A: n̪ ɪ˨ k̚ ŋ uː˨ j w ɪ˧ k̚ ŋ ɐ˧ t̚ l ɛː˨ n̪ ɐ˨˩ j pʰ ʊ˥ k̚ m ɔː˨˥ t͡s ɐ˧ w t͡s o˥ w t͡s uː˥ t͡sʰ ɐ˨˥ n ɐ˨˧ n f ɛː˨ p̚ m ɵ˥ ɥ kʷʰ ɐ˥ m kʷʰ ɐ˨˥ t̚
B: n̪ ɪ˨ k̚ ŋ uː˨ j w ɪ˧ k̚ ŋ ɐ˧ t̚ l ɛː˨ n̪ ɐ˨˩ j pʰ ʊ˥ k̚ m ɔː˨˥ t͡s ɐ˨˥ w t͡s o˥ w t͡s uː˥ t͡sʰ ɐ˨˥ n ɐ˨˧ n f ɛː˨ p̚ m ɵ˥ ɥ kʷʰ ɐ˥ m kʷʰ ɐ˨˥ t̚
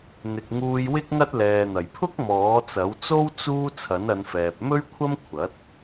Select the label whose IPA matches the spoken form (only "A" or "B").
B